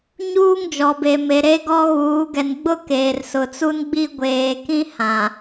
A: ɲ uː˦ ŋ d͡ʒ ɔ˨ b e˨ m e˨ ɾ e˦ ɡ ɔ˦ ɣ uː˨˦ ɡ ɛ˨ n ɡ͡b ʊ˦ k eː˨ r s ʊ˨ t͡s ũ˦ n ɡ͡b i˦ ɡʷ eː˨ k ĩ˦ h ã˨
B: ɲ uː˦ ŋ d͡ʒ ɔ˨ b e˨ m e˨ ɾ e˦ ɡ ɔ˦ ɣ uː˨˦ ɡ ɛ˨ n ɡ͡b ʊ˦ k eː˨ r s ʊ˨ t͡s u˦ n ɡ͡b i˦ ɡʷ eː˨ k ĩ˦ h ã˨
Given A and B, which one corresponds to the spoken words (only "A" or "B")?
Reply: B